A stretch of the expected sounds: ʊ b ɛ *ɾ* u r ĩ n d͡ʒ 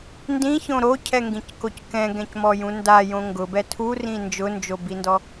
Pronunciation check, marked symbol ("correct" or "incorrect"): incorrect